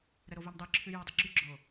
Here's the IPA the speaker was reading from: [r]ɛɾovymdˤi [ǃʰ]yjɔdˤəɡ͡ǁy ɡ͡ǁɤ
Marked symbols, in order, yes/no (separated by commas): no, no